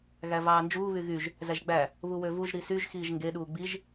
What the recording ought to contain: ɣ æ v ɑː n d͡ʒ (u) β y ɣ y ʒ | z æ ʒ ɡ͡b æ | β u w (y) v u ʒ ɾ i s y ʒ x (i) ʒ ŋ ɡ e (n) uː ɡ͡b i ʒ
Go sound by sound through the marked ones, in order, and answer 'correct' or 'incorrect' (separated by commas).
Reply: incorrect, incorrect, incorrect, incorrect